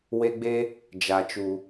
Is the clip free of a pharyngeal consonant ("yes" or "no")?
yes